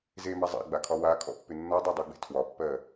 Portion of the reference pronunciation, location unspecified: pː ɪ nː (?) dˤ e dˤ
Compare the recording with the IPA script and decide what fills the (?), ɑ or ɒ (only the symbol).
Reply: ɒ